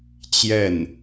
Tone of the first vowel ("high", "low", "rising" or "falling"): falling